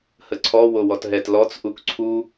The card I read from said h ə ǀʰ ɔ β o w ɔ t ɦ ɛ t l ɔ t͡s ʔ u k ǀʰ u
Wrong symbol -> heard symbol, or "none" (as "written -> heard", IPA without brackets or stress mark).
β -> w